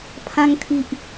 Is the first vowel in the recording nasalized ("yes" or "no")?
yes